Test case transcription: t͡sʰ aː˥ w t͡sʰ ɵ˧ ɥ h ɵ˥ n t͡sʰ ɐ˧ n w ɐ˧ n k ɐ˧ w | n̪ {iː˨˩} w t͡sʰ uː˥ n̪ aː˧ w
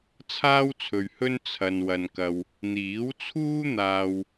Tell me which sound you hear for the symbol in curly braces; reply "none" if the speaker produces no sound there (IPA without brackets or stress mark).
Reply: iː˨˥